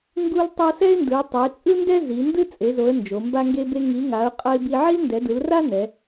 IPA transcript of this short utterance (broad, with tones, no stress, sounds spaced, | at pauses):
ŋ ɡ u˥ l tˤ o˥ s ɛ˥ ɪ̯ n d ɯ˨˦ ʊ̯ tˤ e˨˦ t͡sʼ ɯ˥ n d ɛ˥ z i˨˦ n d ɯ˥ t͡sʼ e˨˦ z o˨˦ ə̯ n d͡ʒ o˨˦ m b a˥ ŋ ɡ e˥ b e˥ ŋ i˨˦ ŋ a˨˦ ʊ̯ qʼ ʌ˥ ɪ̯ b i˥ ʕ i˥ l n d ɛ˨˦ d ɯ˨˦ l r a˥ n ɛ˨˦